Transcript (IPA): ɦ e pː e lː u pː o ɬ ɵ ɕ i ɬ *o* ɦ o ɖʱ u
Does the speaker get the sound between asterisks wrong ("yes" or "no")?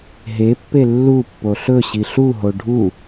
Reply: yes